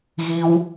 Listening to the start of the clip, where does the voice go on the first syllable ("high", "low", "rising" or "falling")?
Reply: high